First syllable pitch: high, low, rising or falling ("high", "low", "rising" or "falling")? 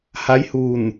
rising